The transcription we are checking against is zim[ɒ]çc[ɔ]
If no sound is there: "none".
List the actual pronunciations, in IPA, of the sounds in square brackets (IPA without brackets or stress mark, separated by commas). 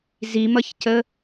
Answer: ʌ, ə